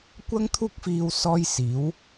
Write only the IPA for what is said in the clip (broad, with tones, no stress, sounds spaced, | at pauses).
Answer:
kʷ ɐ˥ ŋ t̪ʰ uː˥ k̚ f iː˧ w s ɔː˥ j s iː˨˥ w